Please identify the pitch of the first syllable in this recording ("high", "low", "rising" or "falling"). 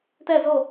falling